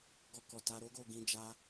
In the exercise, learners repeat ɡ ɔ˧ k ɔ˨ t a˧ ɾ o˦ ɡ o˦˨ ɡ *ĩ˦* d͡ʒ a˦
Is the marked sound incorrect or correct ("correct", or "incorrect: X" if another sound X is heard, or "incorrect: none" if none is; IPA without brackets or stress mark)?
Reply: incorrect: ĩ˧